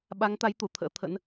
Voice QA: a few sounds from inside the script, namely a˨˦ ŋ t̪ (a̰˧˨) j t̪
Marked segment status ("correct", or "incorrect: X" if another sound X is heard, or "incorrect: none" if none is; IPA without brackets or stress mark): incorrect: a˨˦